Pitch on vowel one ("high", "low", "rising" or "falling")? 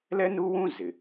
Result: high